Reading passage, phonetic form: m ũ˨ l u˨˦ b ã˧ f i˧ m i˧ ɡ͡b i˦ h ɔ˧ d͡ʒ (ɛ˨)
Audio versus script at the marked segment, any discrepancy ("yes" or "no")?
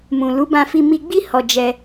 yes